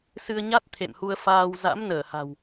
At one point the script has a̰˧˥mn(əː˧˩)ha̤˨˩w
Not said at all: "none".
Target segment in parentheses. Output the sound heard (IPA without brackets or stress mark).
əː˧˩